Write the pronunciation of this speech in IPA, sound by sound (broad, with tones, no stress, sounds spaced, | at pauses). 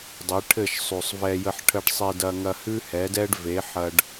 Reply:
dˤ ɘ˨˦ ʈʰ ɘ˦˨ ʃ sˤ ʉ˨ sˤ v ɛ˧ j ə˧ ħ ʈʰ ə˧ ɖ sˤ e˧ d ɐ˧ ŋ ɐ˧ h ʉ˦ h ɛ˨˦ d ɛ˦ ɖ v e˨˦ ħ ɐ˧ ɖ